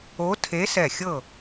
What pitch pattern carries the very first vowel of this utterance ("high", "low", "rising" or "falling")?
rising